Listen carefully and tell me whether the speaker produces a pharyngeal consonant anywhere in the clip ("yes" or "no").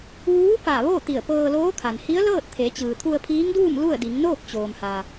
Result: no